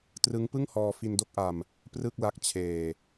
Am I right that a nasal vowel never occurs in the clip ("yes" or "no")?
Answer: yes